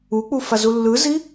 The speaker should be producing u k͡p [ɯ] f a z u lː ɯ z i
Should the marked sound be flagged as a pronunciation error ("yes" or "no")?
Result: yes